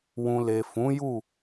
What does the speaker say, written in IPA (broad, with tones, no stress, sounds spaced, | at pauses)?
w ũ˨ l e˨ f ũ˨˦ j u˦˨